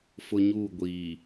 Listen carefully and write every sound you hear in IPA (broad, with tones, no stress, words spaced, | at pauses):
fʊ˦ɲuː˦˨ɡʷiː˨